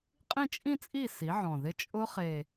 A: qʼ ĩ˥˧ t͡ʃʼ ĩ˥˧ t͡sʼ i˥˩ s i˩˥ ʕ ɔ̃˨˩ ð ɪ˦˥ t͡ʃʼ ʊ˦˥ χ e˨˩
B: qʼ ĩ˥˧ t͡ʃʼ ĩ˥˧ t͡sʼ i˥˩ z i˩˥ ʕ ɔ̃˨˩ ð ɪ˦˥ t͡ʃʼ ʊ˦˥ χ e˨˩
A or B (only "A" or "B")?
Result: A